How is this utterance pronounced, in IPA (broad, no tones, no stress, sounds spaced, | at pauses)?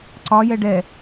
ǀ ɒ j ɛ ɖ ɛ